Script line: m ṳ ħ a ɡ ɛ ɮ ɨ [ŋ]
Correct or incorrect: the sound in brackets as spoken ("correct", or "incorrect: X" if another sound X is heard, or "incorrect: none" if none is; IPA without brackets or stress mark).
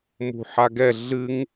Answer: correct